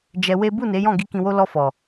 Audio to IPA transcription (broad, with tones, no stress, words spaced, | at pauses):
d͡ʒɛ˧we˦ bu˦˨ne˨˦jɔ̃˦˨ ɡi˧ kĩ˧wo˦ lɔ˧fɔ˨